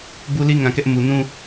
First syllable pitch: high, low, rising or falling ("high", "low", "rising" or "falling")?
high